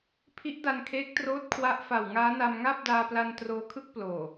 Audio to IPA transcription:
pʰ i˦˥ ʔ d a˧ n kʰ eː˦˥ k̚ t r oː˦˥ t̚ kʰ w a˦˥ ʔ f a˨˩ w ŋ aː˦˥ n a˧ m ŋ aː˥˩ p̚ d aː˧ p l a˧ n t r oː˧ kʰ ɯ˥˩ k̚ p l oː˨˩

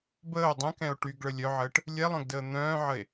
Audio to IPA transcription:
b əː o̯ dˤ ə̃ k ɛ̃ o̯ ʈ y ɡ ɭ ə lʲ œ ʕ əː ʈ | lʲ ɛ lˠ œ̃ ɡ d əː n̪ œ̃ː ʕ ə e̯

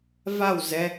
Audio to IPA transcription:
v a w z ɛ

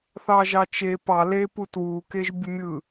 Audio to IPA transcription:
θ ɑ ʒ ɑ t͡ʃ e p ɑ l e p u t w u k e ʒ bʲ u mʲ ɯ

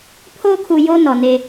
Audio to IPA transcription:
pʰ oː˦ kʰ u˨ j o˦ n ɔ˨ n e˦

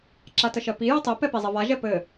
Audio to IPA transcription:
ǁ a t ə ʃ ɜ p i j ɘ tˤ e p ɛ p i zˤ ɘ v a ʒ ɛ p ɘ

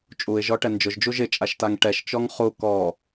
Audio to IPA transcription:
t͡ʃʼ u ɪ̯ ʒ ɔ ʈ ɛ n d͡ʒ ʊ ʒ d͡ʒ u ʒ ɪ t͡ʃʼ a ʃ t a ŋ ʈ ɛ ʃ t͡ʃ ɔ ŋ χ u k ɔ

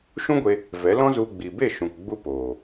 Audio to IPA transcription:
ʃ ũ˦ ɡʷ e˧ | v ɛ˨˦ l ɔ̃˦ z u˧ ɡ͡b i˨ b e˦˨ ʃ ũ˨ k ɡ͡b u˦ p oː˨

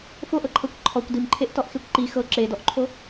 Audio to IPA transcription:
f o ʔ ɤ ǃʰ ɤ kʷ ǃʰ ɔ kʷ d i m ǃʰ e ʔ t ɔ ʔ x e kʷ ǃ i x ɤ ǁ e d ɔ ʔ ǃʰ o

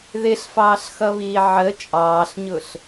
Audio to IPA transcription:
ð ɪ ɬ f ɑː ɬ x ʌ β iː ʕ ə t͡ʃʼ ɑː ɬ ɲ ʊ ɬ

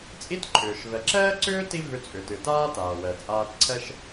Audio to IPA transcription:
t͡sʼ i˥ t ǃʰ ʏː˩ ʃ v ɛ˩ ǁ ɛː˥ ǀ ʏː˥ t i˥ v ʏ˧ t͡sʼ ʏ˩ t ɨ˩ t aː˥ t aː˩ w ɛ˩ t͡sʼ aː˧ t ǀʰ ɛ˥ ʃ

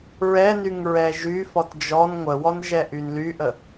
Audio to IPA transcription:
ɹ ɛ n y ŋ ɹ ɛ ʒ y f ɔ t d͡ʒ ɔ n ŋʷ ə w ɔ n ʒ ɛ ʔ y n l y ʔ ə

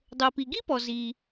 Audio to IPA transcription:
dˤ ɤ˩ p i˩ ɡ i˥ p ɔ˩ z i˩

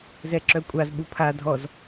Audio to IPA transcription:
z ɛ ǁ œ kʷʼ a z ɓ u pʰ a dʱ ɔ z

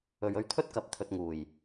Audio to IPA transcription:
ɵ˨ ɥ ɵ˧ ɥ t̪ʰ ɵ˥ t̚ k ɐ˨ p̚ t̪ʰ ɵ˧ t̚ ŋ uː˨˩ j

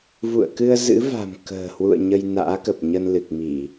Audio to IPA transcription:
v ṵ˧˨ ə̯ k ɨ˧ ə̯ z ɨ̰˧˥ v a̤˨˩ m k ə̤ː˨˩ h w ṵ˧˨ ə̯ ɲ ə˧ j n a̰ː˧˥ k ə˨˩ p̚ ɲ ə˧ n l ɨ˨˩ k̚ m i˧˩˨

